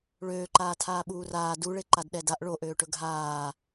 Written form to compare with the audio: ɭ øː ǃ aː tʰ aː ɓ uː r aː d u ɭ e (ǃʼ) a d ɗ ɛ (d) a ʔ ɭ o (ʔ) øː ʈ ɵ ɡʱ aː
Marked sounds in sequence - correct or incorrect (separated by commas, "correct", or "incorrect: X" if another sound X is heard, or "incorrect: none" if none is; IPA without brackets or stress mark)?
incorrect: ǃ, correct, correct